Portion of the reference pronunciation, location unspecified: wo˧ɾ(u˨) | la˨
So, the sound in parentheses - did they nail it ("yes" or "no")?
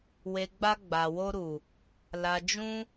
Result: yes